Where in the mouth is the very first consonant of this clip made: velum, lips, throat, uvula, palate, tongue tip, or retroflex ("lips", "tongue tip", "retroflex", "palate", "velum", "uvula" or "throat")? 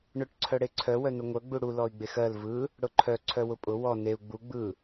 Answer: retroflex